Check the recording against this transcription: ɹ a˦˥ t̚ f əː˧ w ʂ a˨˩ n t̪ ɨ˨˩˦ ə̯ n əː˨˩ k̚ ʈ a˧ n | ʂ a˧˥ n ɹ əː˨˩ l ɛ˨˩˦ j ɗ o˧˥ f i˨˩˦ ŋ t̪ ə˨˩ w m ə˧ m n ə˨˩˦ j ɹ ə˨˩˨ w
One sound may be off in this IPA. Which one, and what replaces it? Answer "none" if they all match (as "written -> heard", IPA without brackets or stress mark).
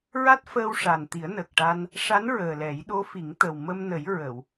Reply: ɨ˨˩˦ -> i˨˩˦